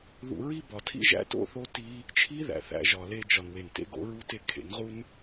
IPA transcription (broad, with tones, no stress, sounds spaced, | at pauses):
ð ṵ˧ ɹ i˦ b ɒ˨ tʰ ḭ˦ ʒ æ̰˦ t o̰˦ θ o˦ t i˦ | t͡ʃʰ i˦ ð æ̰˨ θ æ̰˧ ʒ ɒ˨ l e˧ d͡ʒ ɒ˨ n w e˨ n t ḛ˧ ɡ o̰˧ ɹ u˦ t e˦ kʰ ḛ˨˦ n ʁ u˦ n